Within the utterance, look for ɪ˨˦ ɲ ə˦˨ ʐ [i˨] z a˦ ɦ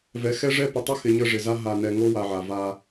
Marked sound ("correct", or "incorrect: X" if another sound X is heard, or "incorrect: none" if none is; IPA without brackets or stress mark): incorrect: ɪ˨